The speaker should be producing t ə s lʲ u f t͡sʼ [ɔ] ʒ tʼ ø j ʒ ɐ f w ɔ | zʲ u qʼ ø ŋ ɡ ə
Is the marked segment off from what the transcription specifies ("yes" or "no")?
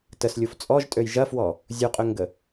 no